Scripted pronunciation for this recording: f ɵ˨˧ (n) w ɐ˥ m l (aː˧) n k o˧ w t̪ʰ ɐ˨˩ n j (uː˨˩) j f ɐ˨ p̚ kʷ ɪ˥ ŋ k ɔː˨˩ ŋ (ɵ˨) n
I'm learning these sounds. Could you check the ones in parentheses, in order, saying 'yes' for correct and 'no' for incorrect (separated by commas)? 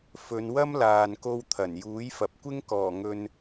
yes, no, no, yes